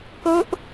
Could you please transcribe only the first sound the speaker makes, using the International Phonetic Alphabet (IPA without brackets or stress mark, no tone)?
k